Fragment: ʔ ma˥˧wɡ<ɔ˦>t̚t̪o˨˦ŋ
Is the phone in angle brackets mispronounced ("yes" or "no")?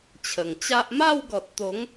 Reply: yes